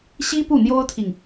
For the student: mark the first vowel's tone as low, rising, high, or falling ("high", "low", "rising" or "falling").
high